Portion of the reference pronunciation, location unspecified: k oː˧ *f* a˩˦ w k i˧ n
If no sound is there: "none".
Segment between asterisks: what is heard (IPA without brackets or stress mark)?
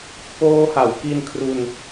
h